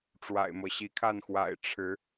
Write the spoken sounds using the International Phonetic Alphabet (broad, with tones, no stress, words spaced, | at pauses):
ʈ͡ʂwa̰˨˩ɪ̯mɤ˦ɕi˨˦kʰa˥˨n xwa̰˨˩ɪ̯ʈ͡ʂʰɻ̩˨˦